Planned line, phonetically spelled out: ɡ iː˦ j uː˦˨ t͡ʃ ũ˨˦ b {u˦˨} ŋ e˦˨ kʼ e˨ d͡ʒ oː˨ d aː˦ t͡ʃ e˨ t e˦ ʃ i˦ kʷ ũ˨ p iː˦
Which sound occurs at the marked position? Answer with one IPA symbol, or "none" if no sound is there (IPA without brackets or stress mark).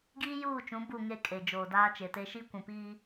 u˦˨